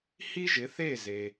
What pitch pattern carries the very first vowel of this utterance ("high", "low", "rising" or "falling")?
high